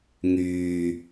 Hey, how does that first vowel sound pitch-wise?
low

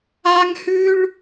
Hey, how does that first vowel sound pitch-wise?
high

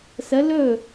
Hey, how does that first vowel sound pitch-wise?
rising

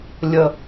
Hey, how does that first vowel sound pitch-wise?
low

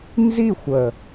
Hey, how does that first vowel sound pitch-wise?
falling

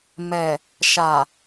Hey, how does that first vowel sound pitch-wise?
low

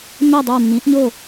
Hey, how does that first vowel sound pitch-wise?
falling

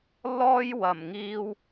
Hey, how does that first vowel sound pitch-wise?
high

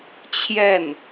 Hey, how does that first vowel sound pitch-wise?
falling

